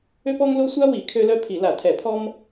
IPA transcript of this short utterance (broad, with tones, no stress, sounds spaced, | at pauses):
ø˥ p ɔ˥ ŋ l o˥ sʷ a˥ w i˧˩˧ kʰ ø˥ l œ˥ pʰ i˧˩˧ l a˧˩˧ tʰ ɛ˧˩˧ pʰ ɔ˥ m